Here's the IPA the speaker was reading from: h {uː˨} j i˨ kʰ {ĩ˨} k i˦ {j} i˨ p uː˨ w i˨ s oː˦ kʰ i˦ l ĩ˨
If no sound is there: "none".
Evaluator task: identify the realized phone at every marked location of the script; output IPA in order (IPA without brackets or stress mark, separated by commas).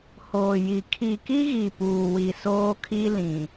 oː˨, i˨, ɣ